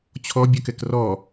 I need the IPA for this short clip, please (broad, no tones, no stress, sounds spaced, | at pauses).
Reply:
t͡ɕʰ ɔ bʲ ɔ k ɛ k r ɔ